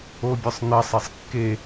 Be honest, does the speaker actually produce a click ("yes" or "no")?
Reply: no